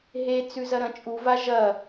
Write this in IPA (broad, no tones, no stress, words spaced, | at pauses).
ɦe t͡sʉzɐɾɐ̃t͡ʃʼu vaʒɐ